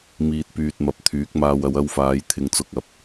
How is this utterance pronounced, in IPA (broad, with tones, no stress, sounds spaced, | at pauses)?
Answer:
m iː˨ t̚ p yː˨ t̚ m ɐ˨ p̚ t̪ʰ yː˨˥ k̚ m aː˧ w ɐ˨˧ w ɐ˧ w f aː˨˧ j t̪ʰ ɪ˧ ŋ t͡s ʊ˧ k̚ ɐ˨ p̚